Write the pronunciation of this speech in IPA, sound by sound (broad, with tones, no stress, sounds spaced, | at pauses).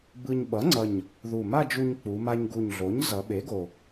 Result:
b ɯ˧ ɲ ɓ ʌ˩˥ ŋ͡ǀ ʌ˨˩ ɲ | ð u˨˩ m a˥˧ d͡ʒ u˧ ɲ k͡p u˩˧ m a˧ ɲ ɡ u˨˩ ɲ ɮ o˩˥ ɲ z ʌ˩˧ ɓ e˩˥ ɡ o˨˩